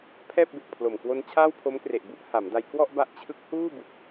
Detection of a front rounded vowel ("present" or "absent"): absent